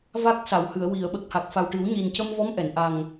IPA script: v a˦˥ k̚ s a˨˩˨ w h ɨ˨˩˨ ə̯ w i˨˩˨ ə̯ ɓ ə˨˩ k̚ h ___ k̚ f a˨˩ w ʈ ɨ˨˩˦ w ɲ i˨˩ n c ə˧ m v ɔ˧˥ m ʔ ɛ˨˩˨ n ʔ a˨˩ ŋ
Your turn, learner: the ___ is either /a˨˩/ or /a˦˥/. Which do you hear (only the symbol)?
a˨˩